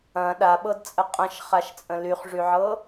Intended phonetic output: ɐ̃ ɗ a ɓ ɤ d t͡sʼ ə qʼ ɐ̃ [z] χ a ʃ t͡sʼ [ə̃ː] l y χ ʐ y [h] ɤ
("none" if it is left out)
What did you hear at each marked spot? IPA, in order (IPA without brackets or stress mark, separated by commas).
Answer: ʃ, ə̃, ʕ